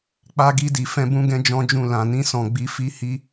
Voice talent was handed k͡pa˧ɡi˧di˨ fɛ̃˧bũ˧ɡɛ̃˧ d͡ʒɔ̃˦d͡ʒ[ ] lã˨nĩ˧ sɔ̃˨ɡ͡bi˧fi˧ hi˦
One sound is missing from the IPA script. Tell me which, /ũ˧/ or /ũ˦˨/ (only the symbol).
ũ˦˨